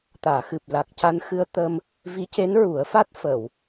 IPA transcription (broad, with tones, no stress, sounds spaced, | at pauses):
t̪ aː˨˩˨ x ɨ˨˩ p̚ l a˨˩ k̚ c a˧ n x ɨ˧ ə̯ t̪ ə˧ m | v i˧˥ c e˧˥ n ɹ u˨˩˦ ə̯ f a˦˥ t̚ f ə˨˩˨ w